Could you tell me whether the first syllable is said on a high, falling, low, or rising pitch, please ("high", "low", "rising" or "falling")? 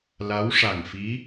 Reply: rising